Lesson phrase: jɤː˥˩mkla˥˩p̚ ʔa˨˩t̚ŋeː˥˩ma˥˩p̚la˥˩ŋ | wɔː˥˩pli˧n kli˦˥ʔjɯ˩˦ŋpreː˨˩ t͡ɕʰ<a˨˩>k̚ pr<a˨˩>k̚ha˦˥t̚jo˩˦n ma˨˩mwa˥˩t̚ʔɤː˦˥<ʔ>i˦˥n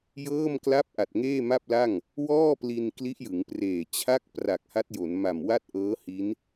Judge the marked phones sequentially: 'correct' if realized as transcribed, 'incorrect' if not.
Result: incorrect: a˥˩, correct, incorrect: h

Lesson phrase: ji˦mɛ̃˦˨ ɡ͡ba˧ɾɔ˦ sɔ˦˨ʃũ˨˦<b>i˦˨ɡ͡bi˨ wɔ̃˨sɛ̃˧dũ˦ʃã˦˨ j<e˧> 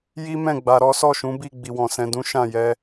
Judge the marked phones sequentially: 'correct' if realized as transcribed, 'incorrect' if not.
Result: correct, incorrect: ɛ˧

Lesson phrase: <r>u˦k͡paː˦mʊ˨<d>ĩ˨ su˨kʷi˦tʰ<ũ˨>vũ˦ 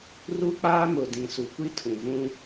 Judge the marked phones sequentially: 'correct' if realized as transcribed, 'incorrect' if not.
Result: correct, correct, correct

